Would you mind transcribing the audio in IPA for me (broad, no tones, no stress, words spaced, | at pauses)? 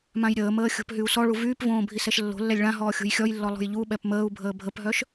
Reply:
mãjɾʲəːməː xʲo̤pɦyu̯sɔɭu vyːpvõː bʱisɛʃlːo̤lːɛlʲ ɭãɦɔː xʲo̤jxʲɔjlːɔ lˠo̤jʎuɓɛp məːu̯ bʱəːbʱəpɦœʃ